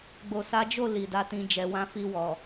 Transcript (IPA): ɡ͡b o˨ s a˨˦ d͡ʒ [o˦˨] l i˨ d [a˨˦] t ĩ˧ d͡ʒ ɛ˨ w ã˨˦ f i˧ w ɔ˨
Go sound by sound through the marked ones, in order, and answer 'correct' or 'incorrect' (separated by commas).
correct, correct